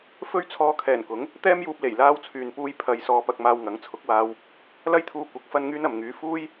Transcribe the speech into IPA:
f ɵ˥ ɥ t͡sʰ ɔː˧ kʰ ɛː˨˩ n k ʊ˨˥ ŋ | t̪ ɛː˥ m j uː˧ p̚ l e˨˩ j l aː˧ w t͡sʰ yː˨ n p uː˧ j pʰ ɐ˧ j s ɔː˧ p ɐ˧ k̚ m aː˧ w ŋ ɐ˨˥ ŋ t͡sʰ ʊ˨˥ k̚ w aː˧ w | l ɐ˥ j t̪ʰ uː˧ kʷ ɐ˨˥ k̚ f ɐ˥ n ŋ yː˥ n ɐ˨˧ m ŋ yː˨˥ f uː˥ j

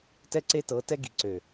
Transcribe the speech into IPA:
t ɛ˦ ǀ e˦ t ɤ˨˦ t ɛ˦ ɡ i˨ ǀ ø˨

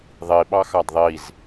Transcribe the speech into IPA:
ðˤ i ɓ ɑ x ɑ d ðˤ i z

